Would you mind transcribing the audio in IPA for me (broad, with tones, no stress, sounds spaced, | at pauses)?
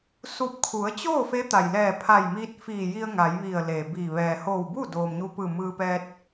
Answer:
s u˧˩ p̚ kʰ u˩˧ ə̯ t͡ɕ oː˥˨ f e˧˥ t̪ a˩ j l ɛː˧˩ pʰ a˧˩ j m iː˧ t̚ f iː˧˩ j i˧ ə̯ ŋ a˩˧ j ʋ i˧˩ ə̯ l e˩ b iː˧˩ ʋ ɛː˩ h oː˧˩ w b u˥˨ d oː˩ m ɲ u˧ p ɯː˧˩ m ɯː˧ p ɛː˧ t̚